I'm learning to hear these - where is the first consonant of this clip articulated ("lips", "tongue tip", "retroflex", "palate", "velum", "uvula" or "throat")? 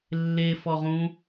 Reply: tongue tip